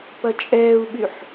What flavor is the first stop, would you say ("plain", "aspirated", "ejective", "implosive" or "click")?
plain